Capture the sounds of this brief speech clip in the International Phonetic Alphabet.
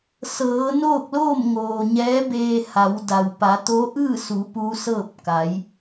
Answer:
sɤː˩˧noː˥˨k̚loː˥˨m ŋoː˩ɲɛː˧˥beː˧ ha˩˧wda˩w pa˩˧t̪o˧˥ʔɯː˥˨su˩˧ pu˧˥sɤː˥˨p̚ ka˩˧j

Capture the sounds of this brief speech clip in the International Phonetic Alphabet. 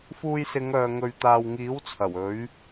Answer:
fuː˧jsɪ˨˧ŋœː˨ ŋɵ˨ɥt̪aː˨wŋiː˨˥w t͡sʰɐ˨˩wɵ˨˥ɥ

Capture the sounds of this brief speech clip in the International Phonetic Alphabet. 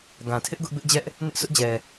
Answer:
ɡã˨tʰɪ˦ʔ ɡʊ˦ʔbɪ˦ʔd͡ʑɛ˦ʔ | nɪ˦ʔsʰʊ˦ʔd͡ʑɛ˨

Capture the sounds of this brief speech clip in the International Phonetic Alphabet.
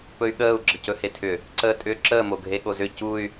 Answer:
pɵy̯ɠəːu̯ ɡ͡ǁəcɵhetʰʏ | ǀəːtʼʏːǁəː moɡʱeɠozʏ cuy̯

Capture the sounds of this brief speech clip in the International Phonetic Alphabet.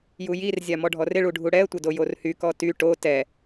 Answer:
jujir zʲamɔɖʱɔrɪ ɭuɖʱuɽɛə̯ tʷɪdojorhy kɔty ʈo tɛ

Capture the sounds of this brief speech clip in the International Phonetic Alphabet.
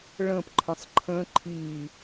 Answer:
ɭə̃pǃʰə̃sˤ ǃʰə̃ ǃʰi

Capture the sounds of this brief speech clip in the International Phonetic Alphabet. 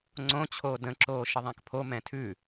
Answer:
ŋ͡ǀõt͡ɕʰoː də̃ǁoː ʃəðˤæ̃kpʰomɛ̃ tʰʉ

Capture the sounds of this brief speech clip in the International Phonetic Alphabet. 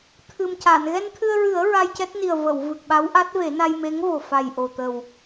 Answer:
t̪ʰɨ˨˩mca˨˩˨n ɣɛ˧nt̪ʰɨ˧ə̯ɹɨ˨˩˦ə̯ ɹa˧jcɛ˦˥t̚ ni˨˩ə̯və˨˩˨wvɨ˨˩k̚ ɓa˧˥wʔa˦˥t̚ve˨˩˦ na˧jme˧˥ŋvo˨˩ fa˨˩jʔo˨˩t̪ə˨˩w

